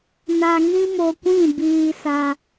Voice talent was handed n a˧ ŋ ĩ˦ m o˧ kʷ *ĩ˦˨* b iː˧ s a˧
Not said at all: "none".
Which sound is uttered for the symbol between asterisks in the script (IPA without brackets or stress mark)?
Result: ĩ˦˨